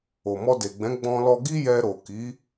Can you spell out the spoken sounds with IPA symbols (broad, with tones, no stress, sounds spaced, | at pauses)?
o˨ m ɔ˧ d e˨ ɡ͡b ɛ̃˨˦ ɡ͡b ɔ̃˧ l ɔ˧ ɡ i˦ j ɛ˧ ɾ o˨ k i˨˦